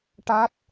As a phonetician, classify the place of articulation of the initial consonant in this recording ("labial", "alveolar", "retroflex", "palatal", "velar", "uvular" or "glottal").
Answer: retroflex